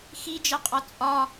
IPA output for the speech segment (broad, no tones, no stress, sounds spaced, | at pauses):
x i d͡ʒ ɜ qʼ ɒ t͡sʼ ɒ